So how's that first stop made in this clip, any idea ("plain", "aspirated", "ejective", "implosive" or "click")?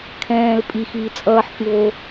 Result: aspirated